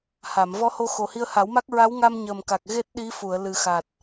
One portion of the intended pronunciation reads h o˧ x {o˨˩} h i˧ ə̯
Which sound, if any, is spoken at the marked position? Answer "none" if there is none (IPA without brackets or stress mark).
o˨˩